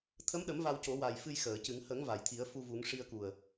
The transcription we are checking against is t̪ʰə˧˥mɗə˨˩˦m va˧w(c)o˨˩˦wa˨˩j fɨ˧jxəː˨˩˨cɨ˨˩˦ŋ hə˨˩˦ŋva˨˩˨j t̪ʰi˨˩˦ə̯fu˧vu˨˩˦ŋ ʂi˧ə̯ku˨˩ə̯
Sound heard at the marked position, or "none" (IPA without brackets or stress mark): c